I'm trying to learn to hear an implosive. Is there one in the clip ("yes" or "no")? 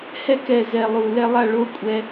no